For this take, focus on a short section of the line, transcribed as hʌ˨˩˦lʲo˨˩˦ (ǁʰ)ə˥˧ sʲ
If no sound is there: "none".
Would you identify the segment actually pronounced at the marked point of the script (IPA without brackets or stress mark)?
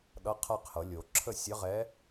ǁʰ